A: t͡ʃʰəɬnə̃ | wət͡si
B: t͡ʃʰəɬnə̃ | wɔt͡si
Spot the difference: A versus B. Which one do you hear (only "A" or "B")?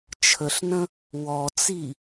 B